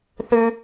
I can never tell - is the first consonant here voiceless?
yes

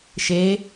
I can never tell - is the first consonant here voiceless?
yes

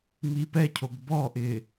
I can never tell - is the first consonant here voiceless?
no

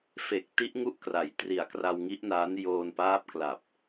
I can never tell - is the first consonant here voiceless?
yes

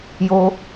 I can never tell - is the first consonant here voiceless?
no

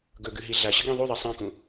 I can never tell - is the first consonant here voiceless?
no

